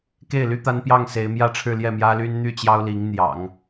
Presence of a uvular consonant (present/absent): absent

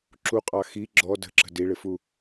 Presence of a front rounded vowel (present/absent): absent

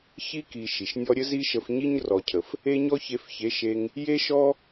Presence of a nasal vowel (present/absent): absent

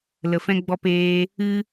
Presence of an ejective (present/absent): absent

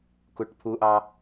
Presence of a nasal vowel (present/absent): absent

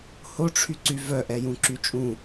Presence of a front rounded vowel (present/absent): present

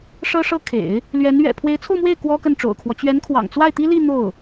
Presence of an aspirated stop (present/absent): present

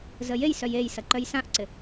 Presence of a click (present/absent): present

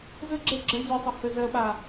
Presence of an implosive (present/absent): present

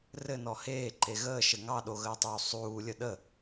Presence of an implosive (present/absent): present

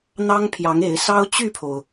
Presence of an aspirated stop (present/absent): present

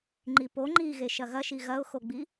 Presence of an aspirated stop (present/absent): absent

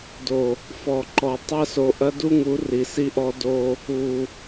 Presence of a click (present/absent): present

